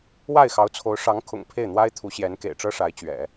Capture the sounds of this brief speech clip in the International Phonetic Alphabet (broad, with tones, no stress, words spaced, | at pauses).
wa˥˩ɪ̯xɑ˧˥ʊ̯t͡sʰo˧˥ʊ̯ ʂɑ˧˥ŋkʰʊ̰˨˩ŋ pʰe˥˩ɪ̯n̪wa˥ɪ̯t̪ʰu˧˥ɕjɛ˧˥n kḛ˨˩ɪ̯ʈ͡ʂɤ˥ʂa˧˥ɪ̯t͡ɕɥɛ̰˨˩˦